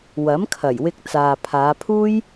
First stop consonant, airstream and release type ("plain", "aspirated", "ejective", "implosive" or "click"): aspirated